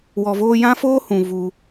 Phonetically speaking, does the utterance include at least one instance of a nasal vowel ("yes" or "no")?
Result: yes